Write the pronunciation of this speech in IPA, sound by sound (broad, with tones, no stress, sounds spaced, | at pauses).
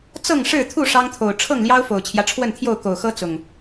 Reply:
t͡s ɤ˥˨ ŋ ʂ ɻ̩˥˨ t̪ʰ u˥˨ ʂ ɑ˦ ŋ t̪ʰ o˨˩ ʊ̯ ʈ͡ʂʰ ɤ˥˨ ŋ l j ɑ˦ ʊ̯ f o˨˩ ʊ̯ t͡ɕʰ j ä˦ ʈ͡ʂʰ w ə˥˨ n t̪ʰ j o˥˨ ʊ̯ k o˨˩ ʊ̯ x ɤ˦ t͡s ʊ˨˩ ŋ